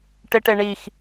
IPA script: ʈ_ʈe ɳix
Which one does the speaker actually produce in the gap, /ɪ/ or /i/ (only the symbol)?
ɪ